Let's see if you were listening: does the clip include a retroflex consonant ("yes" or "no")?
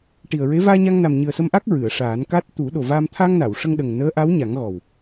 yes